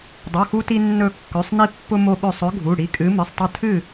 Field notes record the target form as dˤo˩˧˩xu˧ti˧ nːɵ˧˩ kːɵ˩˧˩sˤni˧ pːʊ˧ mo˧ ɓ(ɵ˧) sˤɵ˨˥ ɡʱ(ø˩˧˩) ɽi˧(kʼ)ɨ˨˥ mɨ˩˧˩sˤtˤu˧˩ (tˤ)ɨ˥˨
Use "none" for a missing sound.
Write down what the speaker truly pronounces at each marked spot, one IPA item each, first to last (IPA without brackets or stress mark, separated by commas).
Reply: ɵ˧˩, u˩˧˩, kʼ, tʰ